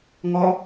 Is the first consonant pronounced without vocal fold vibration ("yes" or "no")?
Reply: no